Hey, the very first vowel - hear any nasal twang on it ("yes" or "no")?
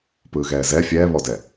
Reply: no